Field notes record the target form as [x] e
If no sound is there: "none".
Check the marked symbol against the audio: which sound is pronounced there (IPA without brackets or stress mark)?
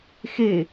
x